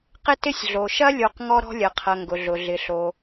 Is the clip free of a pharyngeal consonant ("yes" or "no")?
yes